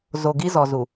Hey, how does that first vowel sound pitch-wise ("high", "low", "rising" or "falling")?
low